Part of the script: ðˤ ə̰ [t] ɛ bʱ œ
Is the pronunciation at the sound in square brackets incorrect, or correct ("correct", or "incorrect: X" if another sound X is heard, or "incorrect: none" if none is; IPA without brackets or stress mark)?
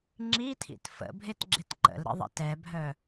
correct